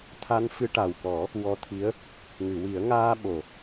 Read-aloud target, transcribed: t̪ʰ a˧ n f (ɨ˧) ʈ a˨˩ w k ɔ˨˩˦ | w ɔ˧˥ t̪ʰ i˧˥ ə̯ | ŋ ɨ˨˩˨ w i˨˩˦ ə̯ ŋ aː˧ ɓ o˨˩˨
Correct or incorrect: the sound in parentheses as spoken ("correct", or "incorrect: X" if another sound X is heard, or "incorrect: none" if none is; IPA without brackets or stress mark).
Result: correct